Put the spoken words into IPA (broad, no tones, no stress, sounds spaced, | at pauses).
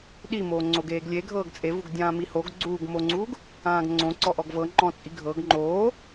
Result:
ɗ i m oː ŋ͡ǀ o ɡ eː ɡ lʲ e ɡʱ ɤː ɡ t͡sʼ e v u ɡ dʲ ãː m i h o ɡ ɡ͡ǀ uː ɡ m o ŋ͡ǀ uː ɡ | ãː ɡ ŋ͡ǀ õ ǀ ɔ ʔ ɔ ɡ v ɤ ŋ͡ǃ ɔ̃ t͡sʼ i ɡʱ ɤ ɡ ŋ͡ǃ oː